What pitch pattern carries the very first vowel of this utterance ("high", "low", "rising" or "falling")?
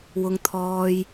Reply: high